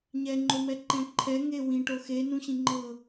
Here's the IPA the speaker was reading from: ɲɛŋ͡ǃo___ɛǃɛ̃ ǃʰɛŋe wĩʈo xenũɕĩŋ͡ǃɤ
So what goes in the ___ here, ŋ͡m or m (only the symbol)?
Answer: m